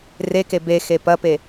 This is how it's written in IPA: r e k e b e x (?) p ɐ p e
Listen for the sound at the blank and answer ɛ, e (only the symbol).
e